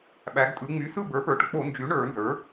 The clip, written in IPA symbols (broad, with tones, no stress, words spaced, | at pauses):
ɓæ˩˧ɡtʼɯ˩˧ŋ͡my˩˥sɯ˥˩ bə˞˩˥pə˞˩˥ʈk͡po˧˩˧nd͡ʒy˩˥ ɳə˞˧˩˧nzə˞˩˥